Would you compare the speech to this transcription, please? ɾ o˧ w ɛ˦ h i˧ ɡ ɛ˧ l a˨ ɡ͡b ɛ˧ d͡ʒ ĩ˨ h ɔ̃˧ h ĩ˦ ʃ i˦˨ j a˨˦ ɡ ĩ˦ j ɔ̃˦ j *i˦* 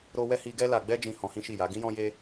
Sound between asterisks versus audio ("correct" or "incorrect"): incorrect